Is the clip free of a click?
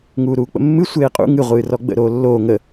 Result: yes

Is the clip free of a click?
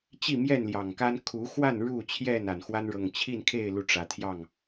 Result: yes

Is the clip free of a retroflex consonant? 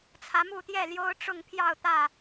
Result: no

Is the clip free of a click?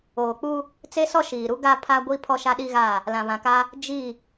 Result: yes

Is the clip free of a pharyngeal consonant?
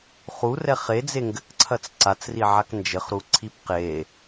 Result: no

